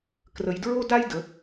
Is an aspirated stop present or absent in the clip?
absent